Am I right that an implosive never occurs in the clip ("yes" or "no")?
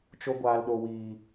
no